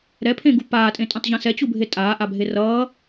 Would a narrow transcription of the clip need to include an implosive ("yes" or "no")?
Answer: no